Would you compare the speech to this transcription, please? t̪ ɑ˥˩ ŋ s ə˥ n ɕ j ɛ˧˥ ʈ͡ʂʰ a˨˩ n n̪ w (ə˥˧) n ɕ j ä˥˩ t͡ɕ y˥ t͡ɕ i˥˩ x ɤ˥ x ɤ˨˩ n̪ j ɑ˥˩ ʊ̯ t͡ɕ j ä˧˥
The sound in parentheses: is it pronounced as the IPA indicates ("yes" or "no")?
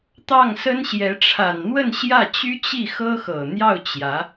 yes